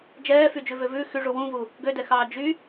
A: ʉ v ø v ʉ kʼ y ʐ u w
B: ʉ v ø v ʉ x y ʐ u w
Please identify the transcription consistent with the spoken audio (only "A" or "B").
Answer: B